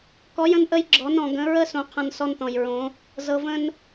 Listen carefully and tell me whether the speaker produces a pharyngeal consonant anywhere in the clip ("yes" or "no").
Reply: no